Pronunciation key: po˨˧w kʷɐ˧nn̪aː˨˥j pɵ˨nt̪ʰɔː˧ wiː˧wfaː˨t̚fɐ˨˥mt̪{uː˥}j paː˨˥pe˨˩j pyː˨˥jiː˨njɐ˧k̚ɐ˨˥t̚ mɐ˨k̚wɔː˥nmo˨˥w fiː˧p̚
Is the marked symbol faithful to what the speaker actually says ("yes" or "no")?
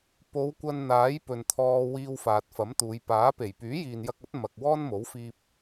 no